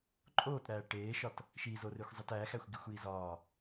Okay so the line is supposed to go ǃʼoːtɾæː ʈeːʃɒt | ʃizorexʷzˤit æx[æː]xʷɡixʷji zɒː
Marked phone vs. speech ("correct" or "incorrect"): incorrect